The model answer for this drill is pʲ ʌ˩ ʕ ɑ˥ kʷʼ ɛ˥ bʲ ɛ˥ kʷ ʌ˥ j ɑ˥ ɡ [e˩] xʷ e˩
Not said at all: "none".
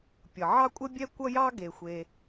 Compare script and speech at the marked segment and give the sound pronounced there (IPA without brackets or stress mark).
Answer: e˩